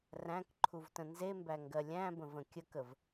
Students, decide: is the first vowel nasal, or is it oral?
nasal